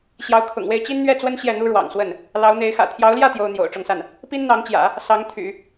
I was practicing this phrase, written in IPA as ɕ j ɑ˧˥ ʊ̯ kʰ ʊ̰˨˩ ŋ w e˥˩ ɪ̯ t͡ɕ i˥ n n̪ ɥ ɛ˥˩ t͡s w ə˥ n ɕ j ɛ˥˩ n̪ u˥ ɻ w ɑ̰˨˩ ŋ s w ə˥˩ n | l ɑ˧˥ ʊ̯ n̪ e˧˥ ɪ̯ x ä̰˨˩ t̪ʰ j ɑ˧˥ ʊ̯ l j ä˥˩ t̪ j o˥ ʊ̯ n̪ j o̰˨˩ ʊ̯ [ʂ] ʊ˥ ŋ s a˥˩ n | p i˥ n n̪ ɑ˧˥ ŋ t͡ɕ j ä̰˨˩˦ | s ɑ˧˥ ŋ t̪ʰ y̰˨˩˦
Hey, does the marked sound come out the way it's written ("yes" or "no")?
no